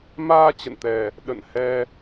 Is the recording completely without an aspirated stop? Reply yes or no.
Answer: yes